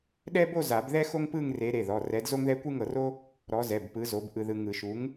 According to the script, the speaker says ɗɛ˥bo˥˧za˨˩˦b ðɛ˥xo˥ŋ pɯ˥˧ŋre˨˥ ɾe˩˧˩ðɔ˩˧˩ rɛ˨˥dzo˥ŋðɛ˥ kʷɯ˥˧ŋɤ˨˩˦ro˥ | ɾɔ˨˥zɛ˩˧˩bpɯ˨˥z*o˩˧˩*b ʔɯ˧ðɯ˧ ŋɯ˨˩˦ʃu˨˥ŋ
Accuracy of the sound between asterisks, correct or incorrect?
incorrect